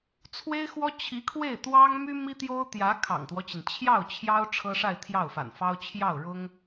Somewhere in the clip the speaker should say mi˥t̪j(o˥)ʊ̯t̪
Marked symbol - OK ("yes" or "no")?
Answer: yes